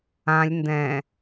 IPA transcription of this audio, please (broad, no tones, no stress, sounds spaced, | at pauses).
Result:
ã lʲ n d ɛ̃